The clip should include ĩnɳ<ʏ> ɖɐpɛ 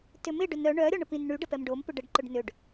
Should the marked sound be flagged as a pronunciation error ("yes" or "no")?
yes